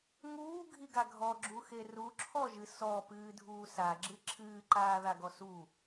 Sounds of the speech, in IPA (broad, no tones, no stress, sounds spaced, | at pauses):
ŋ uː ɡʱ i ɡ a ɡʱ ɔ ɡ͡ǁ u x e r u ǁʰ ɔ ʒ ɨ s ɔ p ɨː dʱ uː s a ɡ͡ǁ ɨ ǁʰ ɨː ǃ aː ð a ɡ ɔ s u